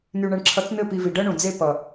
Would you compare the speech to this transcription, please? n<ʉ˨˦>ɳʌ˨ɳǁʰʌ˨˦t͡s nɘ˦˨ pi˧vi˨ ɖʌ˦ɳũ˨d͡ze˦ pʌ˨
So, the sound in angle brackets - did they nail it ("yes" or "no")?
no